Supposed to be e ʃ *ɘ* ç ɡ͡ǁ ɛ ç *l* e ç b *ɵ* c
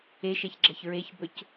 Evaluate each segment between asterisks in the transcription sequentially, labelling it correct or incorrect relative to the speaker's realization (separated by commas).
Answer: incorrect, incorrect, correct